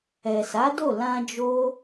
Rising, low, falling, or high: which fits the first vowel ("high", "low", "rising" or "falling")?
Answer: low